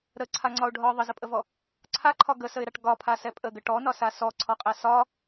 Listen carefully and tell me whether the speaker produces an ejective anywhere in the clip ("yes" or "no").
yes